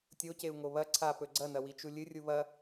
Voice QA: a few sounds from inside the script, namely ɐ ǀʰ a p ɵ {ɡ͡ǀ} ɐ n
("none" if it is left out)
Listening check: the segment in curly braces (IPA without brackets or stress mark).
ɡ͡ǀ